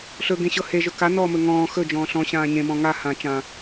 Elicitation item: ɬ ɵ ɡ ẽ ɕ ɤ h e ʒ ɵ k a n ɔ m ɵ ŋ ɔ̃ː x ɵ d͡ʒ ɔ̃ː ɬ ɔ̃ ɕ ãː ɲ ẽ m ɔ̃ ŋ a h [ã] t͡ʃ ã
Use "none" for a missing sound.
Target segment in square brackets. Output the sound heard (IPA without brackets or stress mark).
ã